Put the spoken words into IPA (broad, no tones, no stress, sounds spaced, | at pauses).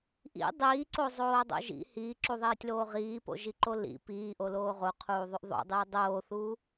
ʔ ḭ dˤ iː ǀ o zˤ oː dˤ o̰ ʒ ḭ h iː ǁ u ðˤ iː tʲ l oː ʁ iː p o̰ ʒ i ǃ o l ḭ p iː ʔ o l oː ʁ o qʰ uː ðˤ y ʔ ðˤ o̰ dˤ yː dˤ oː θ uː